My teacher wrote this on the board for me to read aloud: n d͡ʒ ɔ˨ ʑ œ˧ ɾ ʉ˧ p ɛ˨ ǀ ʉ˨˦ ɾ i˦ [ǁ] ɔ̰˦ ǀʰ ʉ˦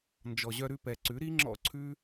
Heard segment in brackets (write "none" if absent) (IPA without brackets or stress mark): ŋ͡ǁ